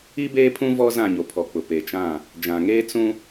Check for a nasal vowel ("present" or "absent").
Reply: present